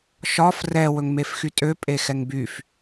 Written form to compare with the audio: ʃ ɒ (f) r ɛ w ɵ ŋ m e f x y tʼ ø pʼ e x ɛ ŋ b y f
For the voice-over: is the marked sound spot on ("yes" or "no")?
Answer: yes